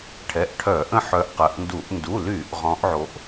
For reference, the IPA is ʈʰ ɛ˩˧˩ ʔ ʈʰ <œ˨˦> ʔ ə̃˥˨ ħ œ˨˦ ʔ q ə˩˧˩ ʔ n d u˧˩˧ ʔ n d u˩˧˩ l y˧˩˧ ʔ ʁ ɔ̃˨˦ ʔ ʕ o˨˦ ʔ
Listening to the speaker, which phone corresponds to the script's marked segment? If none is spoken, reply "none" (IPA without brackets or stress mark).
œ˧˩˧